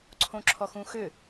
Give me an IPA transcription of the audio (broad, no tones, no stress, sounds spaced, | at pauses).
ǀʰ õ ǁʰ ɔ x ũ x ʏ